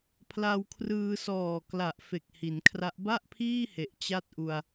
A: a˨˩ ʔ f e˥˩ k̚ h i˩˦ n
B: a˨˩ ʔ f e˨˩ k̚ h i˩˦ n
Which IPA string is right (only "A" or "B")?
B